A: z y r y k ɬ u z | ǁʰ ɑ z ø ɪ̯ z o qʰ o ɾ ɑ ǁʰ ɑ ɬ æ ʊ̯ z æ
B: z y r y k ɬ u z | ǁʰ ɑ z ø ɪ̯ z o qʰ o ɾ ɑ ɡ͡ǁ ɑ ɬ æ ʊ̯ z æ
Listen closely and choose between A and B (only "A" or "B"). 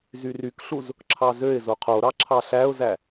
A